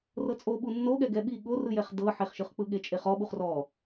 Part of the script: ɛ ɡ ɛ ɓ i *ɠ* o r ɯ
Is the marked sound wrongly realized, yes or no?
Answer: no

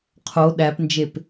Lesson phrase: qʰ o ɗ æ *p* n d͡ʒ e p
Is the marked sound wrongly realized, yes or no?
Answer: no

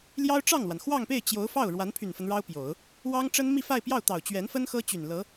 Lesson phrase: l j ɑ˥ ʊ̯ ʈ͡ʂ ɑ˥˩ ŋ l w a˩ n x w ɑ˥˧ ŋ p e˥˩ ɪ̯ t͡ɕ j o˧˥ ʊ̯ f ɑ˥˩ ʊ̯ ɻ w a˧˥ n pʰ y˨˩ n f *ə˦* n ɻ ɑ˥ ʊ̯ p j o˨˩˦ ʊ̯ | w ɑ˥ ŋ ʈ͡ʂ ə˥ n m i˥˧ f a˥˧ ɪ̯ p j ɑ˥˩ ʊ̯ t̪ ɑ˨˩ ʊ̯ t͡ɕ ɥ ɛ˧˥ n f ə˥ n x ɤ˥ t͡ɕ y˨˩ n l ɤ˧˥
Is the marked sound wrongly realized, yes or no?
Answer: no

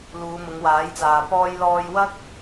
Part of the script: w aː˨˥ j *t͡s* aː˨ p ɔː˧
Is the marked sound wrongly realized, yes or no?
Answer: no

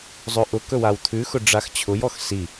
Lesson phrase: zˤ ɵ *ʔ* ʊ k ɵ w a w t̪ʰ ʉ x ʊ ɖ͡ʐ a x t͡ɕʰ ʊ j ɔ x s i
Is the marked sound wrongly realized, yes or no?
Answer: no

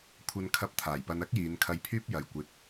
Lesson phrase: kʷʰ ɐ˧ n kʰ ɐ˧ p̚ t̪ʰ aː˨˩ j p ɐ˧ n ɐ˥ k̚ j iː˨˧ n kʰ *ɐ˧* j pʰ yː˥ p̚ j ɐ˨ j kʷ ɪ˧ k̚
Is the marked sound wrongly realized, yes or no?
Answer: no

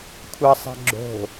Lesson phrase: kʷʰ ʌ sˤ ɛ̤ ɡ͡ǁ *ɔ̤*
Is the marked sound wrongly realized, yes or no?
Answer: yes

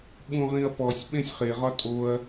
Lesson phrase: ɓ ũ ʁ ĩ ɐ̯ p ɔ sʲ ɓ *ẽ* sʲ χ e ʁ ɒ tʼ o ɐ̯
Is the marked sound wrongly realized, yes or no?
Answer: no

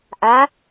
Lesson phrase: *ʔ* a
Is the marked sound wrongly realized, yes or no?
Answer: no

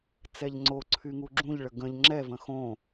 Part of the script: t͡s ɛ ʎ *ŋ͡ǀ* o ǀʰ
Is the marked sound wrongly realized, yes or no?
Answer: no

